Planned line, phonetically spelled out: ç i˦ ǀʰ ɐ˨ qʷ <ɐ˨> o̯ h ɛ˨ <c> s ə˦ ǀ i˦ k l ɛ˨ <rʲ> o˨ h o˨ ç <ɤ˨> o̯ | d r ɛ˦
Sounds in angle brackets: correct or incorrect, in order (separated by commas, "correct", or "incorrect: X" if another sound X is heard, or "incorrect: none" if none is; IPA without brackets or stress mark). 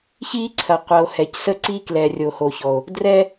correct, correct, correct, incorrect: ɔ˨